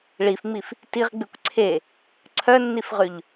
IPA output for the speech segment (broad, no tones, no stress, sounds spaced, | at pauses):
ɭ i f ŋ͡m i f | t i ʁ ɡ͡b ʉ kʷ ǀʰ e | ǀʰ œ nː i f ʁ ʉ ʎ